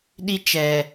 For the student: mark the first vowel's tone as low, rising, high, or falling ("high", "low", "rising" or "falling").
high